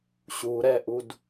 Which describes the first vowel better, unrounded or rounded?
rounded